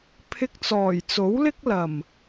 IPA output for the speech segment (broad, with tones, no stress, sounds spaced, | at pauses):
pʰ ɪ˧ k̚ t͡s ɔː˨˩ j t͡s o˨˥ w l ɪ˥ k̚ l ɐ˨˩ m